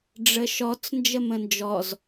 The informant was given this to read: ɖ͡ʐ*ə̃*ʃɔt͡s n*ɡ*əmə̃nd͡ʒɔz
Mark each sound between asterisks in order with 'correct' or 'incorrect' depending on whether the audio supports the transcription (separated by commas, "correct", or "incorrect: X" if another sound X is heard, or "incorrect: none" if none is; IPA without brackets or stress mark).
incorrect: ə, incorrect: d͡ʒ